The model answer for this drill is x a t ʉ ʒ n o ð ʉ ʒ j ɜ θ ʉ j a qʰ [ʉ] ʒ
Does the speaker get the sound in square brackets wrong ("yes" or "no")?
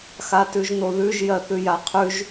no